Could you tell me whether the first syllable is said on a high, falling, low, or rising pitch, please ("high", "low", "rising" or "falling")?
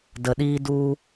low